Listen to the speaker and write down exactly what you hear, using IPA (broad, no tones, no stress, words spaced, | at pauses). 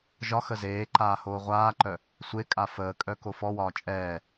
ʒɒ xəzeːǃaː hoːʁʷaːǃœ | sʷekʼa fəːkʼœ kofɔwɒː t͡ʃʼɛː